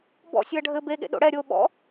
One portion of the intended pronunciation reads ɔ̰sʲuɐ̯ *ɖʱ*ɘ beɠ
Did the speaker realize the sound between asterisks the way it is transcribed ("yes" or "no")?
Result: yes